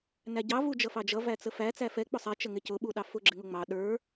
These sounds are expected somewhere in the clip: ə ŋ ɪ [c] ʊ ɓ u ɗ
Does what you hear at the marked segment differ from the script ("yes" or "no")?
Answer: no